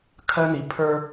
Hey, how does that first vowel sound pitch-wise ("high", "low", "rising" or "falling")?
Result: high